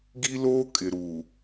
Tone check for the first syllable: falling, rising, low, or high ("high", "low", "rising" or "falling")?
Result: high